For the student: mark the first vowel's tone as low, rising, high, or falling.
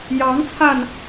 rising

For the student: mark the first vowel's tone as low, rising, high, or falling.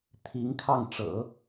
rising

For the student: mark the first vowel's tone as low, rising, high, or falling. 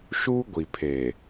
high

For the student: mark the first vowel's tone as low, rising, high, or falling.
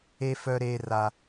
high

